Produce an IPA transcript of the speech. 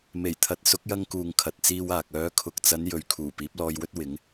m e˨˩ j t̪ʰ ɐ˨ t̚ s ʊ˨˥ k̚ j ɐ˧ ŋ k uː˨ ŋ kʰ ɐ˨ t̚ t͡s iː˧ w aː˨ k̚ œː˨˧ kʰ ʊ˨ k̚ t͡s ɐ˨˧ n j ɵ˨˧ ɥ kʰ uː˨˩ p iː˨˥ p̚ l ɔː˧ j w ɵ˥ t̚ w ɪ˨˥ ŋ

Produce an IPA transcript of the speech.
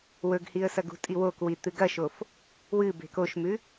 w ɵ ɡ h i ə̯ s ɐ ɡ ṳ tʼ i w o k w i t̪ ɨ ɡ ɐ ʃ o f | w ɨ b e̤ k o ʃ m ʉ

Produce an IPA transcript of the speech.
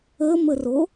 ə m ə r o

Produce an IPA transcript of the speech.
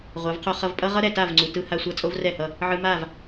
ʁʷ a˨˦ v qʰ o˧ χ ʌ˧ v pʼ ʌ˦ ʁ ʌ˦ ɾ ɛ˨ t a˦˨ v ŋ͡ǀ u˨ t ɯ˧ h a˧ sʷ a˧ t͡sʼ o˦ v r ɛ˦˨ h ʌ˧ | ʕ ɯ˧ m a˦˨ v

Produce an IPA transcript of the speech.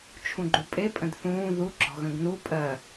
t͡ʃʰ ũ ɡ͡ǃ u pʼ e pʼ ə̃ d θ ũː ð u ɡ͡ǁ ɔ̤ ɣ ə̃ ɡ n u pʼ ɜ

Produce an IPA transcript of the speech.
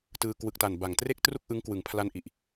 t ɯː˧ k w ɯ˨˩ k̚ t a˨˩ n b a˨˩ ŋ t r e˥˩ k̚ t r u˥˩ k̚ ʔ ɯ˦˥ ŋ k w ɯ˨˩ ŋ pʰ l a˧ n ʔ i˨˩ ʔ

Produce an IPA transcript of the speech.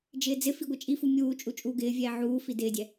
d͡ʒ ɪː d͡z ɪ f i ɡʷ ɛ t͡ʃʼ i f u mʲ uː t͡ʃʼ u t͡ʃʼ uː ɡ ɪː vʲ ɛː ʕ uː f i d ɪː dʲ ɛ

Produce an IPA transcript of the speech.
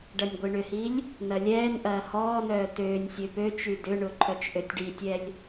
ɖ ɐ nʲ ɡʷ i ɳ ʏ h i lʲ | n ɐ lʲ ɛː n ʔ ɐː h ɔː n œː t øː nʲ sʲ ø p ø t͡ʃ y d ʏ ɳ ʊ ǃʰ œ t͡ʃ ʔ ø tʲ ɖ i tʲ ɛ lʲ

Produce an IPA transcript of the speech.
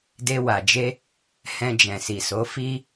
d e˧ w a˨ d͡ʒ e˧ | h ɛ̃˧ d͡ʒ ɛ̃˨ s i˨ s o˨˦ f i˧

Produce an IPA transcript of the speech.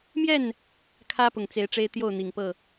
m j ɛ˥˨ n | kʰ ä˦ p ʊ˨˩ ŋ t͡s e˨˦ ɪ̯ ʈ͡ʂ e˦ ɪ̯ t̪ j o˥˨ ʊ̯ n̪ i˨˩ ŋ p ɤ˥˨

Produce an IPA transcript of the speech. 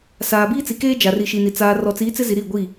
s aː˨ b iː˦ t͡s i˨ k eː˦ d͡ʒ a˨ r i˨ ʃ i˨ n i˨ t͡s aː˨ r ɔ˨ t͡s iː˨˦ t͡s ɪ˦ z i˨ ɾ i˦˨ ɡʷ i˦˨

